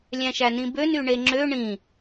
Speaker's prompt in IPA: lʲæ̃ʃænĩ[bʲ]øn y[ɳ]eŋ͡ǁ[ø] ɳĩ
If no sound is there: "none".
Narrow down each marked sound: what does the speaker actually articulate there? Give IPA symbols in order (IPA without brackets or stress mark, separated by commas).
b, ɳ, ø